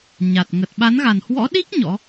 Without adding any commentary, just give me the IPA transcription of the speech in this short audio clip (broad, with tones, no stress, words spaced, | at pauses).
ɲa˨˩t̚ ŋə˨˩t̚ɓa˨˦nɣa˨˩nhwɔ̰˧˥ ɗi˦˥k̚ ɲɔ̰˧˥